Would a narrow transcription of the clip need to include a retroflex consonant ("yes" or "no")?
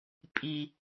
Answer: no